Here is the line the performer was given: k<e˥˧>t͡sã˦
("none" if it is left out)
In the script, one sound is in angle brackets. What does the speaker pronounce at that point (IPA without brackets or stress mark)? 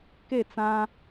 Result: e˥˧